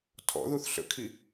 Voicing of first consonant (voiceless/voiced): voiceless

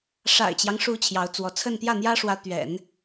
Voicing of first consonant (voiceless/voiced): voiceless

